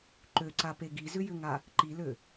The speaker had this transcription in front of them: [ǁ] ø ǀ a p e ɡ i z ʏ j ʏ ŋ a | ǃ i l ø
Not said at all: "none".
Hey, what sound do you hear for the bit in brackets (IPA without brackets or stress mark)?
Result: ǃ